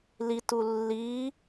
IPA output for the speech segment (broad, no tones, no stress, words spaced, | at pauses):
litu lːi